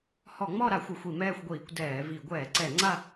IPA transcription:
hɔ˧˩˧ŋ͡mɔ˥˧ɾa˧˩˧ xʷɪ˧˩˧xʷi˧˩˧mɛː˥˧xʷɡʷiː˧˩˧kʷ dɛː˧˩˧vi˧˩˧ ɡʷɛː˧˩˧ǀɛ˧˩˧ŋ͡ǀa˥˧

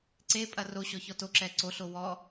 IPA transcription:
ǀepʼɐ roɕɔçɔ toǁɛ ǀoɬo wɔ

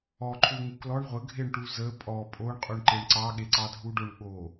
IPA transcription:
ɔ ǃʰuŋuklɔɳ ʁʷə ɡʱeɳʈuzə pʼɔ pʼoɳ qʼuɳǃeɳǀɑ ɠeǀɑdʱuɖoɳ ɠo

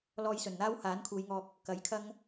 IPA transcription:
lɔː˧jsɵ˨˩n n̪aː˥whaː˨˥nkʰuː˨˧jŋɔː˧k̚ | kɐ˨˥jkʰɐ˥ŋ

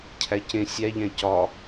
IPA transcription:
cʰæcẽ sʲæʎæ̃ cɒ

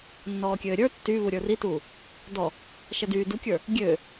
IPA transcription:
nːɔːkʲøːɾʲə˞ tːy βuɾʲə˞rituː | dɔ | ʃɛdyː dukʲə˞ | ɡʲøː

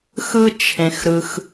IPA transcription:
xɯ˥t͡ʃʰẽ˩x ɾɯ˩x

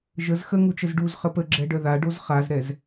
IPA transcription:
ʒəz xəŋut͡ʃəz ɖuzχə pəɡ͡ǁɛɖœ ðaɖoz χazɾɛz

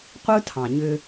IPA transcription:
qʷɯ˦tʰɑ̃˨ ɲʏ˧

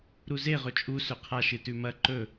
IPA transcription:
ɾuze ʁɵt͡ʃʼu sɵqʰa ʃɨtʉmɐ ǃɵ

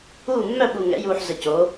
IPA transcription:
uː˥˩ mːœ˥˩ɓu˨˩ŋɛ̰˩˧juː˨˩ħ zə˨˩co˩˧

